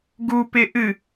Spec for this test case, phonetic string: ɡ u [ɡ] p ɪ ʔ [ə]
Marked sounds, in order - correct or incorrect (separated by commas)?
incorrect, incorrect